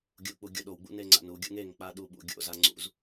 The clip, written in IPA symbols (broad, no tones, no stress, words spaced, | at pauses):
ɡʲuk͡pu ɡʲoɗowɡ͡bṵ neŋ͡ǀa̰nuɡʲṵŋ eŋk͡pa ɗuɓṵɡʲo̰za ŋ͡ǀṵz